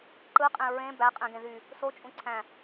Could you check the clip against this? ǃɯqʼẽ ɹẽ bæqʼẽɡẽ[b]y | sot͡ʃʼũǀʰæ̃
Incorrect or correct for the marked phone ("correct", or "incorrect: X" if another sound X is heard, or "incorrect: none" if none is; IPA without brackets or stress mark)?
incorrect: ð